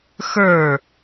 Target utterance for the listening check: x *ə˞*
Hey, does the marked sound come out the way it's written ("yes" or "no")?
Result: yes